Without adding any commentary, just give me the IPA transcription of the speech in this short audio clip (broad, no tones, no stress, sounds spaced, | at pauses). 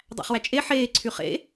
dˤ æ̰ χ w æ t͡ʃʼ e ħ eː ǀʰ y χ ḛ